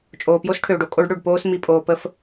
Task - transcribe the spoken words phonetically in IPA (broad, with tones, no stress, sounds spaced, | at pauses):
t͡ʃʼ oː˨ p j o˦ s ʈʰ øː˨ ɖ o˨ kʼ o˦ ɖ ɽ ø˨ ɖ p oː˦ s m i˨ pʼ oː˨ p ə˦ f